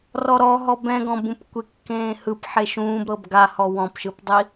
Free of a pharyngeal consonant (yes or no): no